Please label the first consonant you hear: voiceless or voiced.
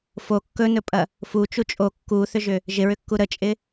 voiceless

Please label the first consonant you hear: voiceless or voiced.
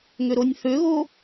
voiced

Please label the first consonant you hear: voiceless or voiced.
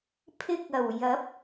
voiceless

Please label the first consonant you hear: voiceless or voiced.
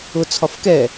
voiceless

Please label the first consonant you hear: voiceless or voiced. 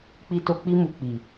voiceless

